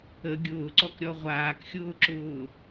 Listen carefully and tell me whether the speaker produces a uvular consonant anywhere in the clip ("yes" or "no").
yes